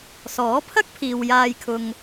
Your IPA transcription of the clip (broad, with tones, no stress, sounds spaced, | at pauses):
s ɔː˨˥ pʰ ɐ˥ k̚ pʰ iː˨ w j aː˧ j kʰ ʊ˧ ŋ